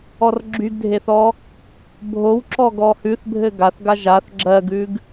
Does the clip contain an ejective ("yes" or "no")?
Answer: no